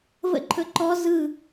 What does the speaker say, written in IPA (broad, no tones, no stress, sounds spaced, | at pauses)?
v ə̰ ǃʰ ɵ ǃ ɔ z ɯ